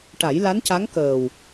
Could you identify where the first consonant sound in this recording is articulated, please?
retroflex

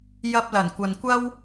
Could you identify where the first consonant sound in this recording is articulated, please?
palatal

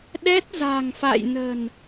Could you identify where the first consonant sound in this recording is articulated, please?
alveolar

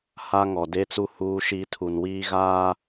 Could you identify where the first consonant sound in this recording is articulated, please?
glottal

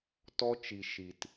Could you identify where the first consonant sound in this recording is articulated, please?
alveolar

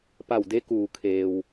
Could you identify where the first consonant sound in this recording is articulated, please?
labial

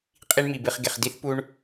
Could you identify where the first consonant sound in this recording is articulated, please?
uvular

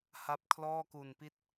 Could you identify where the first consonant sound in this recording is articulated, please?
glottal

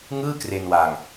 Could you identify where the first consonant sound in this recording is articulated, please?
velar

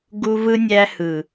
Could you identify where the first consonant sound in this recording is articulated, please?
velar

